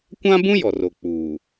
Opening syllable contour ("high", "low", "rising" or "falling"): high